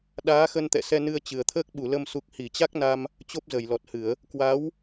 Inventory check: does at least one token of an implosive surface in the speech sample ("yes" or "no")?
yes